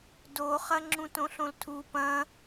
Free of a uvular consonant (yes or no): no